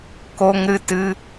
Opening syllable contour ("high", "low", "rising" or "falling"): high